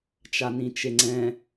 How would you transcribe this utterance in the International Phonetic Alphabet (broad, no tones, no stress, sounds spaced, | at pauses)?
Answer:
t͡ʃ a n ĩ t͡ʃ e ŋ͡ǀ ɛ̃